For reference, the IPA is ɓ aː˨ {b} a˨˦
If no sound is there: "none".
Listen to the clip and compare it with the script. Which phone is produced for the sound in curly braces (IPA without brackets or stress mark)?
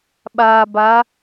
b